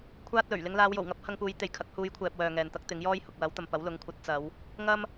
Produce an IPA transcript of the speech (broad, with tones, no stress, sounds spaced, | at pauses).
kʷʰ aː˥ t̚ l ɵ˨˩ ɥ l ɪ˧ ŋ l aː˨˧ w j o˨˩ w ŋ ɐ˥ p̚ h ɐ˧ ŋ p uː˨˧ j t̪ e˨ j kʰ ɐ˨˥ k̚ h uː˨˧ j kʷʰ ɛː˨ p̚ w œː˨ ŋ ɛː˨ n t̪ ɐ˥ k̚ t̪ ɪ˨˥ ŋ j ɔː˥ j h ʊ˨ k̚ w ɐ˨˥ w t̪ ɐ˨ m p ɐ˨˥ w l ʊ˨˥ ŋ kʷʰ ɐ˨˥ t̚ t͡s ɐ˨˧ w | ŋ ɐ˥ m